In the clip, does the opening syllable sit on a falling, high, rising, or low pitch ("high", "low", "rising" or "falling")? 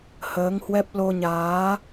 rising